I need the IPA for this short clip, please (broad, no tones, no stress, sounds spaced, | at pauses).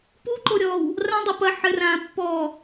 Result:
p u ǃ o ɾʲ ɔː w | r ã dˤ u p ɐ ħ ɘ r ãː pː ɔː